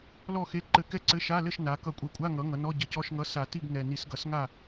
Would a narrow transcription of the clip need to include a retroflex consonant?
no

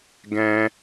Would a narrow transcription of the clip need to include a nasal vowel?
yes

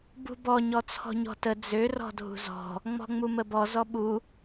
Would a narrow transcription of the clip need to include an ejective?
no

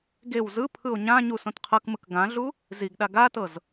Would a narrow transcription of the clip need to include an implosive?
yes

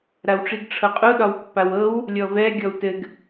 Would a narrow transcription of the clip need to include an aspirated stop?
yes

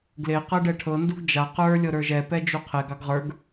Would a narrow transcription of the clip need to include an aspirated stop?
yes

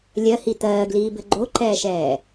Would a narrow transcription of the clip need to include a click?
yes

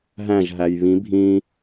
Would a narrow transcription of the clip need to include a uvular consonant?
no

